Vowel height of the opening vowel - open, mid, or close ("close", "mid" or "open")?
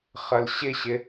open